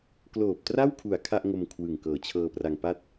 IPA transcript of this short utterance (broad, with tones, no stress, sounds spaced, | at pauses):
k l oː˨˩ p̚ t r a˥˩ w kʰ u˨˩ a̯ kʰ a˥˩ ʔ ŋ o˧ m kʰ w ɯ˨˩ ŋ k ɤː˨˩ t͡ɕʰ ɤː˧ p r a˧ ŋ p a˥˩ t̚